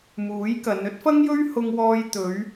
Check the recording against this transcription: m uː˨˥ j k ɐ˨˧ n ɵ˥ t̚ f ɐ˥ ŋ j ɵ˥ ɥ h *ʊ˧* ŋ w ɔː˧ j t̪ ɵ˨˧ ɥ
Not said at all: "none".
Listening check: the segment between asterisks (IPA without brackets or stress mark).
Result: ʊ˧